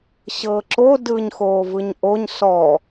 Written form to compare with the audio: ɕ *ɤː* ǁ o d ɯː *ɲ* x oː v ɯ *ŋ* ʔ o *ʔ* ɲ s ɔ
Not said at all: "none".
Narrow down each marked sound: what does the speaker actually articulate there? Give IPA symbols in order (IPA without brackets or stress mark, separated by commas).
ɤː, ɲ, ɲ, none